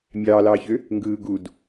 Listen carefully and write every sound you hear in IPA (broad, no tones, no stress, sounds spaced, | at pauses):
mʲ ɑː l ɑː ç ø | ŋ ɡ ɯː ɡ u d